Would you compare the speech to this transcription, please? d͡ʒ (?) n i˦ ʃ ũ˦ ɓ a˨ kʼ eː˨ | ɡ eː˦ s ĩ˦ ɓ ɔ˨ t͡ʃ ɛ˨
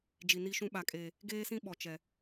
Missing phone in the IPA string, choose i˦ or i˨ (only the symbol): i˨